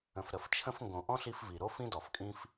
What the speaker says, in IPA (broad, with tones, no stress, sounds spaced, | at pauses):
ə̃˨ f ɾ ə˨ f t͡ʃʰ ə̃˧ f ŋ ɡ õ˨ ʔ ɔ̃˦ ɬ i˧ f v i˨ ɾ o˦ f ĩ˦ d ɔ˨ f kʼ ĩ˦ f